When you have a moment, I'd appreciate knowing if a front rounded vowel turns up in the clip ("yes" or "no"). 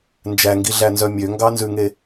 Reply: yes